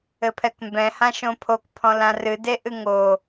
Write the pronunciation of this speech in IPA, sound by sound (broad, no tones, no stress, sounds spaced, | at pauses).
ɘ pʰ ɛ k m b ɛ̃ h ã ʃ õ pʰ o k pʰ ɔ̃ l ã r ɨ d e ʔ ɨ ŋ o